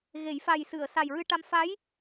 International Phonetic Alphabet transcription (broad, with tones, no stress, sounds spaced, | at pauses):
ɣ e˨˩˦ j f a˨˩ j s ɨ˨˩˨ ə̯ s a˨˩ j ɹ ɨ˧ ʈ a˧ m f a˧˥ j